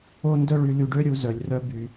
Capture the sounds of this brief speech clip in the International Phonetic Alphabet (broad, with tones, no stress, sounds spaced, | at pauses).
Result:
o˥ n d œ˥ ɭ y˧ l y˧ ɖ ø˥ ɾʲ u˧ z œ˩ lʲ r œ˧ b y˩